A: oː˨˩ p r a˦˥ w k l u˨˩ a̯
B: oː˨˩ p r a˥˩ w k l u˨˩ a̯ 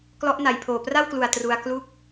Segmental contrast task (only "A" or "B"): B